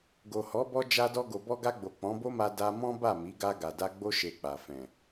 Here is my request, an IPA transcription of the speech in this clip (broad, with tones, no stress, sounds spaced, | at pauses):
ɡ o˨ h ɔ˨˦ b ɔ˧ d͡ʒ a˧ d ɔ˧ ɡ o˨ b ɔ˧ ɡ a˧ ɡ͡b o˨ k͡p ɔ̃˨˦ b o˦ m a˧ d a˧ m ɔ̃˦ b a˦˨ m i˨˦ ɡ a˧ ɡ a˨ d a˧ ɡ͡b o˦ ʃ e˧ k͡p a˨ f ɛ̃˨